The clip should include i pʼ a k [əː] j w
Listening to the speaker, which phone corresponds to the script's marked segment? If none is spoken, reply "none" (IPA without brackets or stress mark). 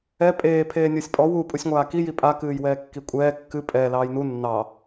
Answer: ɨː